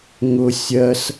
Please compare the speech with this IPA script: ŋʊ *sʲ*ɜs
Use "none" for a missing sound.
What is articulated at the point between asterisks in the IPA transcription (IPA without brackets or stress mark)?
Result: sʲ